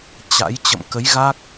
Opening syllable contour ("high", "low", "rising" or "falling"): rising